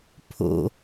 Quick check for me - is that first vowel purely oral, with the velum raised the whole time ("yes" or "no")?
yes